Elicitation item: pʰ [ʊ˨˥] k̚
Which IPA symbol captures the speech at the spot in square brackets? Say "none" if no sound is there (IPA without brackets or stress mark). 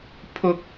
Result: ʊ˥